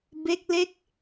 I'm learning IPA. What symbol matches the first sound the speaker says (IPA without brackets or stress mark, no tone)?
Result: b